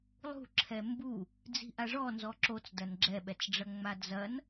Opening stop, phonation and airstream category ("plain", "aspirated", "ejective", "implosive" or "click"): click